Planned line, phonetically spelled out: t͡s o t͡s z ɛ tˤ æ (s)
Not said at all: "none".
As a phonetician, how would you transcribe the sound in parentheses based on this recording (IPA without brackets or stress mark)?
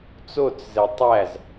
z